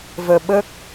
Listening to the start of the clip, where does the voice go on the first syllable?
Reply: low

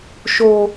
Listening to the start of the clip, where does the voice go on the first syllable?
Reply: high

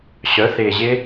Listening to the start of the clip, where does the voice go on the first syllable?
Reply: rising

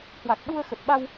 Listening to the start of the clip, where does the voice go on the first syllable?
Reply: low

